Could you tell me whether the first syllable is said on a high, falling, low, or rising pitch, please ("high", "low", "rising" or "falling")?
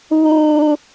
high